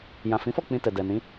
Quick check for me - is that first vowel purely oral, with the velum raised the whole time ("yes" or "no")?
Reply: no